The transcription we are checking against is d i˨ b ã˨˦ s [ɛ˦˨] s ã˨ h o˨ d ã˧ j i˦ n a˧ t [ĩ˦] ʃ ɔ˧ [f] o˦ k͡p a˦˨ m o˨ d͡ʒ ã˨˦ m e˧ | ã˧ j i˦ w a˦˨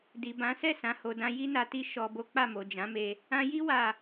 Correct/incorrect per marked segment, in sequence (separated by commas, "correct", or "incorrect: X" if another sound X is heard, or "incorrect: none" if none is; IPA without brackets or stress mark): correct, incorrect: i˦, incorrect: b